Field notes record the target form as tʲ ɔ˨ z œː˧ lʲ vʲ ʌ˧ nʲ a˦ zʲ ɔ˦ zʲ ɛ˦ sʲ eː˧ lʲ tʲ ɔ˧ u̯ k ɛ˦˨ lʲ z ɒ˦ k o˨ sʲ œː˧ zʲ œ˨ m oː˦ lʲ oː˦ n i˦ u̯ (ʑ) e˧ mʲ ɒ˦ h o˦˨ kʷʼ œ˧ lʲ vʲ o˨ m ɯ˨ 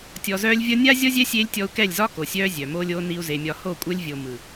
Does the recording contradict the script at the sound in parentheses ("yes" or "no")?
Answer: yes